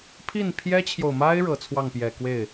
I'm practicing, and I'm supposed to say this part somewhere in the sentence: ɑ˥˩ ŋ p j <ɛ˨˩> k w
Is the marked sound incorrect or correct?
correct